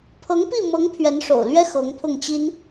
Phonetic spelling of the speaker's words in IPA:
pʰɤ˧˥ŋpi˥˩mɤ˧˥ŋ pʰɥɛ˧˥nʂo̰˨˩ʊ̯lɥɛ˥ xɤ˧˥ŋpʰʊ˥˩ŋt͡ɕi˥n

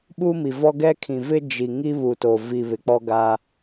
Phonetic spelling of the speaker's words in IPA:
ɓuː˦mi˨vɔ˦ ɡɛ˦ kʰĩ˨vɪ˦ d͡ʒi˨ ŋi˦βu˨to˨ vi˨ βɪ˨k͡pɔ˦ɡa˦

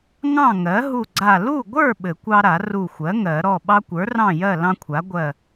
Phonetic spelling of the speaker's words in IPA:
ŋɑ̃˥˨ŋɜ˩˥ ɦu˧˩ɡ͡ǀa˧˩ lu˥˨ɡʷə˞˥˨ ɓɘ˨˩˦kʷɑ˦ɾa˨˩˦ ru˧˩xʷɜ˩˥ ŋɜ˨˩˦ɾɔ˥˨ ɓɑ˦kʷə˞˩˥rɑ̃˥˨jɜ˥˨ lɑ̃˦kʷʰa˩˥ɡʷɜ˧˩

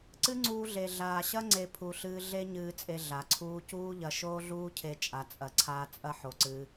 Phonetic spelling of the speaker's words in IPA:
ǀɨ˦ŋ͡ǀuː˧ɮe˨ ɮaː˨ɕɐ˦ ŋ͡ǀe˧pʰu˨ɬɨː˧ ɮe˦ ɲɨː˧t͡sʼe˧ ɮa˨ǀʰuː˦ cuː˦ʎɐ˧ ʃoː˦ɮuː˦ cʰe˧t͡ʃʼa˨t͡sʼɐ˨ǀʰaː˧ t͡sʼɐ˦ħo˨ǀɨː˧

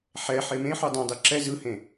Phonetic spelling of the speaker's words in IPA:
ħɛ ħemẽħu dˤẽdˤi ǁɛ zɯhẽ

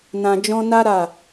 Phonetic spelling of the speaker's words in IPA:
nã˨d͡ʒɔ̃˧na˦ ɾa˦˨

